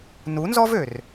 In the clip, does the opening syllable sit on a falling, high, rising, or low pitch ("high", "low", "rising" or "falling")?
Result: rising